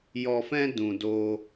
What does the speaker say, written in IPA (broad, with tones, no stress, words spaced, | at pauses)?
jɔ˧fɛ̃˦ dũ˧doː˦